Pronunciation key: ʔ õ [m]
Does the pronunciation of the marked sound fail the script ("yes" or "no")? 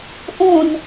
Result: yes